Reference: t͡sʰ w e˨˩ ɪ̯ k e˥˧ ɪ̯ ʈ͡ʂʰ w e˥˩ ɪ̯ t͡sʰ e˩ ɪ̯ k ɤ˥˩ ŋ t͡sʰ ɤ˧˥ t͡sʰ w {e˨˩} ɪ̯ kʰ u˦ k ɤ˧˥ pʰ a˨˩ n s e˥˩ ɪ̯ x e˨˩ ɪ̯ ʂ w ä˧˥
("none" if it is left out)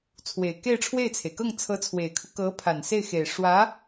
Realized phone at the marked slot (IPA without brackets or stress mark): e˨˩